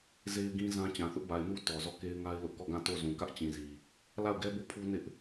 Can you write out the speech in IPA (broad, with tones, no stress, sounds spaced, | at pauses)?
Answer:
z e˦ ɪ̯ ɡ ĩ˦ z ã˦ t͡ɕ ã˨ θ ʊ˦ ʔ b a˨ ɪ̯ n u˦ t ɔ˨ z ɔ˦˨ k e˦ ɪ̯ ŋ a˦ ɪ̯ l ʊ˦ ʔ k ɔ˦˨ ɡ ã˦˨ t o˦˨ z ũ˨ k ä˦ ʔ t͡ɕ ĩ˨ z i˨ | l a˦˨ ʊ̯ ɡ ɛ˦ b o˦˨ pʰ u˦ n ɪ˦ ʔ